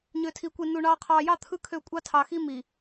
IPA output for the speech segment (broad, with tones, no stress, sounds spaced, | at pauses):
ɲ ø˨ tʰ i˨ kʷ i˨ n u˨ ɳ ɑː˨ qʰ ɑː˨ j ɑ˦˨ t̪ʰ ɯ˦ kʰ ø˦˨ kʷʼ ɑ˦ tʰ ɑ˨ x i˦ m i˨